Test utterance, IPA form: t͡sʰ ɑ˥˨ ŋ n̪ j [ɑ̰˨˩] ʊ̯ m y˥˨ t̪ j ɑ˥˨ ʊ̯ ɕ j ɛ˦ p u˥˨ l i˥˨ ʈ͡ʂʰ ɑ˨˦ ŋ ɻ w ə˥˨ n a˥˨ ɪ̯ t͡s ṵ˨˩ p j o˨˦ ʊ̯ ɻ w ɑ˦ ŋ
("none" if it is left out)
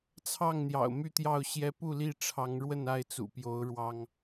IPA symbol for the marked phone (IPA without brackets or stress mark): ɑ̰˨˩